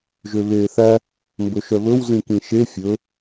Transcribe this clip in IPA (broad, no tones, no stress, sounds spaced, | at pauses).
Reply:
ʒ ø β eː θ æ | m b ɵ ʃ œ β ɵ w z ĩ k ĩ ʃ e fʲ ɵ